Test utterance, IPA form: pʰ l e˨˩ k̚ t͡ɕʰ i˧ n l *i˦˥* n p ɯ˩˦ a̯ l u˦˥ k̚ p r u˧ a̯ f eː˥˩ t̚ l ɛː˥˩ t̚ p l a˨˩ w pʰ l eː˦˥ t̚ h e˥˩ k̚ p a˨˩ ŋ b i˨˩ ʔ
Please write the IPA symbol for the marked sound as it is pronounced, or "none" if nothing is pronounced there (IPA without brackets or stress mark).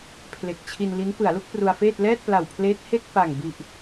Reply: i˦˥